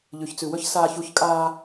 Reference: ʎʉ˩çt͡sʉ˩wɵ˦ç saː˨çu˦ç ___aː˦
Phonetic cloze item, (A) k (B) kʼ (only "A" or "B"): B